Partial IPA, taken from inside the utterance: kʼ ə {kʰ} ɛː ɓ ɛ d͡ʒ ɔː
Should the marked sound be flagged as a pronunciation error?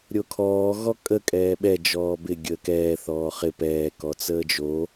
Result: yes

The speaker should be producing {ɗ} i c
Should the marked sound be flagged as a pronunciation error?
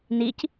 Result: yes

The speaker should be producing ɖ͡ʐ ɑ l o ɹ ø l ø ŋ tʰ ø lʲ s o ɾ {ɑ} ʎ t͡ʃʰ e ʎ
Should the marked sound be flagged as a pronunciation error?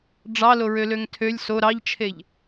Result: no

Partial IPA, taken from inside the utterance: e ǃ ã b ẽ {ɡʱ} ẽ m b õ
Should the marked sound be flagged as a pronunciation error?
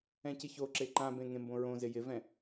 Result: yes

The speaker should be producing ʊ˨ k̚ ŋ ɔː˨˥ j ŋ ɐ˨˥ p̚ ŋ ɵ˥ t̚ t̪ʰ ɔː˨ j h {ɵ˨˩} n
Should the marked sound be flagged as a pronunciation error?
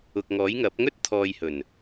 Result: no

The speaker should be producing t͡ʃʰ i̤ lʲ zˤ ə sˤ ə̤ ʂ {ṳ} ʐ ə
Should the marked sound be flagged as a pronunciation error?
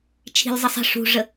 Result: no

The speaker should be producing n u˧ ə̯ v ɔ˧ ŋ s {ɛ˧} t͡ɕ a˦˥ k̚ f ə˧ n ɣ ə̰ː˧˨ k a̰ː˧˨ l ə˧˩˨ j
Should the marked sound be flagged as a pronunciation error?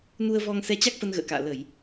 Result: no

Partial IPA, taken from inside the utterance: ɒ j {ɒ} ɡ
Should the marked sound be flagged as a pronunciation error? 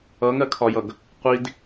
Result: yes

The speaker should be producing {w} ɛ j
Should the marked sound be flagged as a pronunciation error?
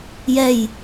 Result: yes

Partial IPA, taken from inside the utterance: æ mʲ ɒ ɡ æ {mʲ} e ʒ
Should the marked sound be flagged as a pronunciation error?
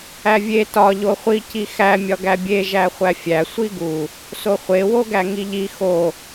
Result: yes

